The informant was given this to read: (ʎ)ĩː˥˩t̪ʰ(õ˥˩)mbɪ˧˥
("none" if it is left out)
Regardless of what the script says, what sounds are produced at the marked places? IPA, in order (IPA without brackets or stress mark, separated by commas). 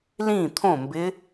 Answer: l, õ˥˩